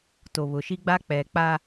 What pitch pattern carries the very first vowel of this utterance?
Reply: low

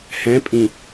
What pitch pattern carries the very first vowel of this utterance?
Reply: rising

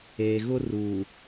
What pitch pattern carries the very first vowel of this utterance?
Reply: low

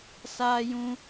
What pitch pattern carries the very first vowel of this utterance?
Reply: high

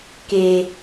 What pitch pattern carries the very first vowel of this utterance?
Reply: low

